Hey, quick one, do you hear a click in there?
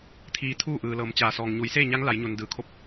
no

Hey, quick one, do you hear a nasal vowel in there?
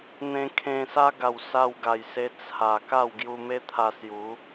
yes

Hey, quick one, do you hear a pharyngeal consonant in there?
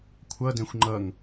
no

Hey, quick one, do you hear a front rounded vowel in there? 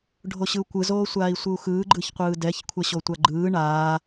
no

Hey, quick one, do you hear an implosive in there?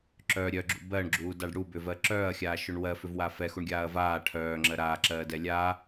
no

